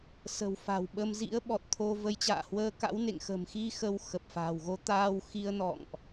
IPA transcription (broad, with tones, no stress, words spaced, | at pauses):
sə̤˨˩wfa̤˨˩wɓə˧m zḭ˧˥ə̯ɓɔ˨˩t̚t̪ʰo˧ və˨˦jt͡ɕa̰ː˧˨hwəː˧ka̰˧˥w nḛ˧˨ŋxə̤˨˩mxi˧ xə˧wxə˨˩p̚fa̤˨˩w ɣo˨˦ t̪aː˧wxi˧ə̯nɔ̰˧˨ŋʔ